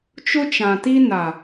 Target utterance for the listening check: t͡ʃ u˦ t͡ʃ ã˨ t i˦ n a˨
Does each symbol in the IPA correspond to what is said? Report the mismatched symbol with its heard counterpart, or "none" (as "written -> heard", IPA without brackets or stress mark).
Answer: u˦ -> ʊ˦